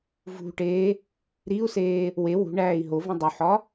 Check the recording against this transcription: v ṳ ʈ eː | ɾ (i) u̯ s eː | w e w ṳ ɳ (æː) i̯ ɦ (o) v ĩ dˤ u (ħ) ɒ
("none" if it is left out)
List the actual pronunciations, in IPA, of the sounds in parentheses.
i, æː, o, ħ

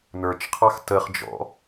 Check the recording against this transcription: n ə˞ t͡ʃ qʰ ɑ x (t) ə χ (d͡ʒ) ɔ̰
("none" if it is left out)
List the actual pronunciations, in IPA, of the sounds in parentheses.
t, d͡ʒ

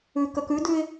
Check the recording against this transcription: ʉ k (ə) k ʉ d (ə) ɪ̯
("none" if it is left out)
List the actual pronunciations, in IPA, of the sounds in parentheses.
ə, ʉ

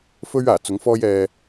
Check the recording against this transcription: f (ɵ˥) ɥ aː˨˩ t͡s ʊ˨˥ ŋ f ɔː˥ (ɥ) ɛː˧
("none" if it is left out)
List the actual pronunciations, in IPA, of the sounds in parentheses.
ɵ˥, j

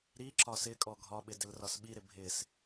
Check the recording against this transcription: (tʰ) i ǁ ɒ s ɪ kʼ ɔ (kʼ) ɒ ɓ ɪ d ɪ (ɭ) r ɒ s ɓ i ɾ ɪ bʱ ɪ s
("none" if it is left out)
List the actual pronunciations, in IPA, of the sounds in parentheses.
ɾ, ɡʱ, l

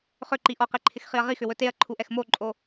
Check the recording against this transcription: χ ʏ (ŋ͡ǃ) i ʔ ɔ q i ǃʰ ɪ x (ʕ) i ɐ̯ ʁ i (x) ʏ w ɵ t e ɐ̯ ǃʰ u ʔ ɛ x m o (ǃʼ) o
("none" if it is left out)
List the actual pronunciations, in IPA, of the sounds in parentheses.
ǃ, χ, x, ǃʼ

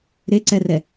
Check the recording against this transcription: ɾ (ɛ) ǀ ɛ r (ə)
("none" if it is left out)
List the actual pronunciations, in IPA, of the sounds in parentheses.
e, ɛ

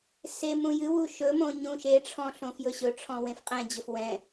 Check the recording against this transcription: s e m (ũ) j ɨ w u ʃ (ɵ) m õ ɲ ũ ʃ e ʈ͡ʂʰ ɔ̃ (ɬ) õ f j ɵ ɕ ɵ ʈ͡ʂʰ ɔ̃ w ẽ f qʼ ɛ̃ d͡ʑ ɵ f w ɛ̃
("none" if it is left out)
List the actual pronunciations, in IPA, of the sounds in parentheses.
ũ, ɵ, ɬ

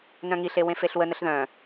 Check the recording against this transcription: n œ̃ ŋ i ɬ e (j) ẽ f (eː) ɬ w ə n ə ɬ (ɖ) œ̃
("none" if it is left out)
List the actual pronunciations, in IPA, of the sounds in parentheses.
w, e, ð

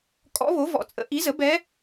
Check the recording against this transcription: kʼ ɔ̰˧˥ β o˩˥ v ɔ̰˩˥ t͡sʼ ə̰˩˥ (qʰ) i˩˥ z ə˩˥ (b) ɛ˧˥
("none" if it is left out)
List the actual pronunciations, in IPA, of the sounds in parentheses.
ʔ, b

